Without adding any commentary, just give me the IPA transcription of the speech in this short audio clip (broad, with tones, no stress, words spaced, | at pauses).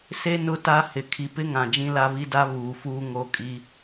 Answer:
se˦ nʊ˦ta˦ hɪ˨ kʰi˨pɪ˦ŋã˨ d͡ʒĩ˦la˦βi˦da˦ βuː˨fuː˦ ŋo˦kʼi˦